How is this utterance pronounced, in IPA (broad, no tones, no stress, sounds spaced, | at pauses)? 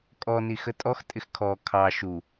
kʼ ɔ n i x ə tʼ ɔ x tʼ ɪ x kʰ ɔ kʰ ɑ ʃ u